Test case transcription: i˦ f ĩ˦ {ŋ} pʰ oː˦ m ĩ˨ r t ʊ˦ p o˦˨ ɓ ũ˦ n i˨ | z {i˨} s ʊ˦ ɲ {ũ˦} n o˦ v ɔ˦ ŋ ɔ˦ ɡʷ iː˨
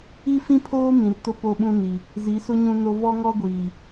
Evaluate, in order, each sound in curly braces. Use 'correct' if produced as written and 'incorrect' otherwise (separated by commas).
incorrect, incorrect, correct